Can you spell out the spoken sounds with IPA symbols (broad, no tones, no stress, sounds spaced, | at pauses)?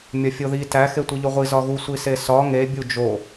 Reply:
mʲ ɒ fʲ o ð i t æ x e tʷ i ʎ o ʁʷ i z ɒ ɣ u sʷ i s e s ɒ ŋ e bʲ u d͡ʒ o